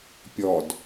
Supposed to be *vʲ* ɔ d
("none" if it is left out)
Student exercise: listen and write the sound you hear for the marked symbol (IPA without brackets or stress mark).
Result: pʲ